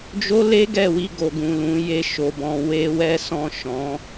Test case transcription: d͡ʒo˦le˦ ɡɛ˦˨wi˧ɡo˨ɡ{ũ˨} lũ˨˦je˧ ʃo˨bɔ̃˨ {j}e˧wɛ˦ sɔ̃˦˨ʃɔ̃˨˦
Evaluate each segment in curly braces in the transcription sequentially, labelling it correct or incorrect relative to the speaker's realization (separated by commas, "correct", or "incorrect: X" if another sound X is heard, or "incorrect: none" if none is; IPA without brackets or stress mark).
correct, incorrect: w